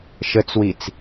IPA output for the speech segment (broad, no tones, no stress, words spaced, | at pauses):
ʃət͡swit͡s